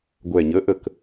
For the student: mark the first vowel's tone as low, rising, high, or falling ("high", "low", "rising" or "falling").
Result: low